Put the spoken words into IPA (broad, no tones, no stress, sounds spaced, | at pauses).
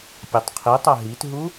pʲ a tˤ qʰ i tˤ a ɦ i t ɦ u